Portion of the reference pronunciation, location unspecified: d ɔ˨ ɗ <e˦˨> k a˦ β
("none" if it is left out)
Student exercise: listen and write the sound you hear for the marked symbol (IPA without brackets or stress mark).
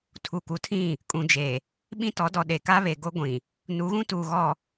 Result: e˨